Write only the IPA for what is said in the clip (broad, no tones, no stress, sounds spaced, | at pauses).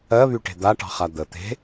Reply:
ɜ β y ʈ e̤ d̪ a ʈ ɑ̤ χ a d̪ ə t̪ e̤